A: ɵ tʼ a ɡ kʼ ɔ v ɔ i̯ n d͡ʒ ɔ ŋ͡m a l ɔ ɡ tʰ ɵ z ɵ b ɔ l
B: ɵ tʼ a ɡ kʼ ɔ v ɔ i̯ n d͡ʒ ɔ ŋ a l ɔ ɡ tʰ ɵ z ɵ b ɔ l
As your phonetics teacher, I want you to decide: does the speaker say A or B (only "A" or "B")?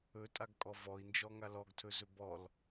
B